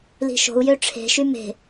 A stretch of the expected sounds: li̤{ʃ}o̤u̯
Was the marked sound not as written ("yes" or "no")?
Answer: no